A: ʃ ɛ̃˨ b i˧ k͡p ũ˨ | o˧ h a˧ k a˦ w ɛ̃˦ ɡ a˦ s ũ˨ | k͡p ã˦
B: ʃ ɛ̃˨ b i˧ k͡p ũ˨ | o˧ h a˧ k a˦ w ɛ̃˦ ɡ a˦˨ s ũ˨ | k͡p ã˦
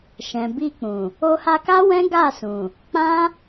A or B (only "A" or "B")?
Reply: B